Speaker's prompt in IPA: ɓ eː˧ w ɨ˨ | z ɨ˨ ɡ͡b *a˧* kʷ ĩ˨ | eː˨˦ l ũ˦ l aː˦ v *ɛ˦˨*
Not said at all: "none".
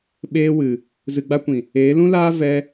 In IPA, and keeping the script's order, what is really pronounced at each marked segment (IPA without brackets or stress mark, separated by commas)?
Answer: a˧, ɛ˧